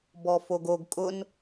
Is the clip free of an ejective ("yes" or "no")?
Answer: no